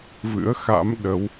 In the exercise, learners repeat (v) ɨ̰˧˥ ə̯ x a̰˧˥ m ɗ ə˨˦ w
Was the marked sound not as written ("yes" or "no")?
no